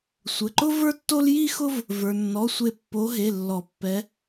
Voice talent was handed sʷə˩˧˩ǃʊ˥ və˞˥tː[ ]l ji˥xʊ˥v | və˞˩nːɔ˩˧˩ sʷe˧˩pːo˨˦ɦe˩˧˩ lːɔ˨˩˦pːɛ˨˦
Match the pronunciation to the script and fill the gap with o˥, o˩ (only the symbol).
o˥